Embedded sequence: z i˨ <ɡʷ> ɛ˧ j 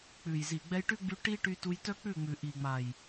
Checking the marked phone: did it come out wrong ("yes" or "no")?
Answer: yes